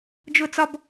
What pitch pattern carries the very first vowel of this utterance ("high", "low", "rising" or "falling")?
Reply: high